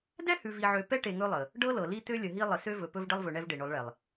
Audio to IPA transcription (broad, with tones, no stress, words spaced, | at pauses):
dɛ˦hʉ˨vi˨ʕø˨ pɛ˦ʈe˨ ŋɵ˦lˠə˨ | ɖɤ˦lɤ˨li˦ t̪ø˦lʲə˨ɦi˦ lˠə˨sø˦ vɵ˨pɵ˦vɖə˦lˠvɵ˨ ɳɛ˦vɖe˨ɳɵ˨˦lˠɭɛ˨lˠ